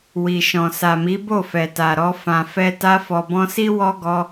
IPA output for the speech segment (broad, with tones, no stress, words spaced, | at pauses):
wi˨ʃɔ̃˨ sa˨mi˨˦ bo˦˨fɛ˨ ta˨ɾɔ˧ fã˨fɛ˧ ta˧fɔ˨bɔ̃˧si˦ wɔ˦ɡɔ˧